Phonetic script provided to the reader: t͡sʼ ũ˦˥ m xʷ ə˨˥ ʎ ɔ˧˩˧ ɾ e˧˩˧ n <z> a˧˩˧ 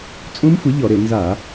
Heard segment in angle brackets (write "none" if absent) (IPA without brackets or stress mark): z